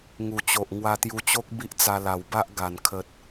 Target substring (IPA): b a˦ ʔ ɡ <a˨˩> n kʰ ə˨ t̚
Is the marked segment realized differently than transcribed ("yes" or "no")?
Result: no